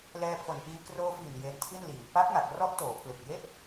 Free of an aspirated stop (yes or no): no